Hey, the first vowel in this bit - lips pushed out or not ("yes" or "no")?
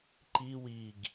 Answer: no